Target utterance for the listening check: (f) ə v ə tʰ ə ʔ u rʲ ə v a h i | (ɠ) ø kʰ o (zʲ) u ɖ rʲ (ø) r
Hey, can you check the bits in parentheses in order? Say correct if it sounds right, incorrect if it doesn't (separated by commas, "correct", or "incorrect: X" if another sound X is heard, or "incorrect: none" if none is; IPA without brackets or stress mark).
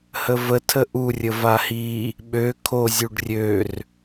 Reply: incorrect: h, incorrect: ɓ, correct, correct